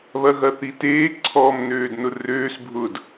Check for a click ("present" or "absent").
present